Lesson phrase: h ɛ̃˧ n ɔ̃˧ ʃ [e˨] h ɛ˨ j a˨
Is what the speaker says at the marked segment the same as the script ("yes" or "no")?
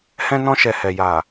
no